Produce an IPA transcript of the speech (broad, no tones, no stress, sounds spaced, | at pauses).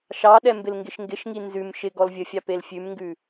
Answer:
ʃ ɑ ɗ ɛ m b ɪ l ŋ ɡ ɪ ʃ ŋ ɡ ɪ ʃ ŋ i n z ʉ m ʃ ɪ ɡ ɔ l vʲ ə fʲ ɑ p e l fʲ ʉ m ŋ ɡ ʉ